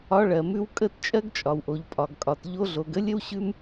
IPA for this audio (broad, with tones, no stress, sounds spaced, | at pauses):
ɒ˧ ɭ ɜ˨ m ʉ˧ w kʼ ə˦˨ t t͡ʃʼ ɜ˦ ɡ t͡ʃʼ ɒ˨ w ʔ o˨ ʎ pʼ ɒ˨ ɡ kʼ ɒ˨ t ʎ o˧ ɮ o˨ ɡ ə˦ lʲ ə˦ w ɕ ʉ˦ m